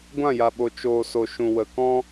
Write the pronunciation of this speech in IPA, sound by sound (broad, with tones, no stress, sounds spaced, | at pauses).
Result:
ɡʷ ã˦˨ j a˨ ɓ o˨ t͡ʃ oː˨ s o˨ ʃ ũ˨ w ə˨ k ɔ̃˦